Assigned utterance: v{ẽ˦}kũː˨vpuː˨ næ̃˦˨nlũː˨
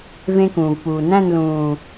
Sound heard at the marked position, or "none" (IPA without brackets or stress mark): ẽ˦